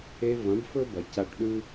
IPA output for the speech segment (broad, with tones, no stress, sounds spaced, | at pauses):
e˧ v ɐ̃˨˦ b f ɵ˦ b ɐ˨ c a˧ ʈ ɗ ʉ˦